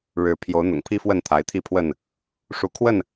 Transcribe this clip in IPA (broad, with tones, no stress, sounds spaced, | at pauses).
ɻ ɻ̩˨˦ pʰ j o˨˦ ʊ̯ n̪ ʊ̰˨˩ ŋ pʰ i˦ f w ə˥˨ n t̪ʰ a˨˦ ɪ̯ t̪ʰ i˥˨ pʰ w ə˥˨ n | ʂ u˨˦ kʰ w ə˥˨ n